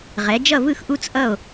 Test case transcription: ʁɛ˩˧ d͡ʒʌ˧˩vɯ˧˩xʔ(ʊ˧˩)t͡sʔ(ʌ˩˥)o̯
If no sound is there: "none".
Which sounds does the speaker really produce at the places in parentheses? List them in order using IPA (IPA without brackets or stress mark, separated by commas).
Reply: u˧˩, ʌ˧˩